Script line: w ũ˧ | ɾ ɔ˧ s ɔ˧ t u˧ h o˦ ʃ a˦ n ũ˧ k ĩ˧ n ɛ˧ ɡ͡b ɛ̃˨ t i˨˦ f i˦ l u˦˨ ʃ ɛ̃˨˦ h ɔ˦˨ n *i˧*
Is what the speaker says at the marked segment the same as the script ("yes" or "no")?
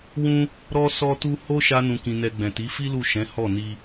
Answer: yes